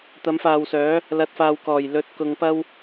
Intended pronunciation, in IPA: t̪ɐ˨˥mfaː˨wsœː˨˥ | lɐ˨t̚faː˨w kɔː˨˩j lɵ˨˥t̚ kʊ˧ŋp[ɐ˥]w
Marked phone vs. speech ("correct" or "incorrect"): correct